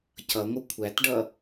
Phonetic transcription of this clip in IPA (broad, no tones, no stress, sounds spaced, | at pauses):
c ʌ ŋʷ ə kʷʰ æ t ɖ ʌ